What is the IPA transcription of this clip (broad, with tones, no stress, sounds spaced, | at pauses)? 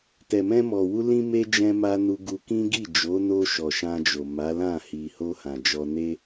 t ɛ˨ m ɛ̃˧ m ɔ˨ w u˧ l ĩ˧ m e˧ d͡ʒ ɛ̃˦ m a˦ n u˧ ɡ u˧ k ĩ˦ ɡ i˦˨ d͡ʒ o˨˦ n o˧ ʃ ɔ˨ ʃ ã˧ d͡ʒ o˨ m a˨˦ l ã˦˨ h i˨ h o˧ h ã˨ d͡ʒ ɔ˧ n e˦